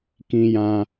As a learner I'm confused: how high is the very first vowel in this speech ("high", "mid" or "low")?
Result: high